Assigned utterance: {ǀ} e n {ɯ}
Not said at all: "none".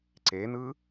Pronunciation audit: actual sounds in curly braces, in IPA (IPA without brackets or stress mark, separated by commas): ǀ, ɯ